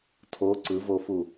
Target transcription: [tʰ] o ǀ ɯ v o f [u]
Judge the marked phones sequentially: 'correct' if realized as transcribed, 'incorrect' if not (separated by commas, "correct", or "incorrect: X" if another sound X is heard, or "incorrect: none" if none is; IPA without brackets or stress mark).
correct, correct